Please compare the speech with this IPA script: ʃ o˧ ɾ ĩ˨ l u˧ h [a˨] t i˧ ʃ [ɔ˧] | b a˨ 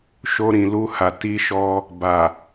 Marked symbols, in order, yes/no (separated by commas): yes, yes